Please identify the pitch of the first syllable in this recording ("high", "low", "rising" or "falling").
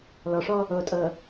low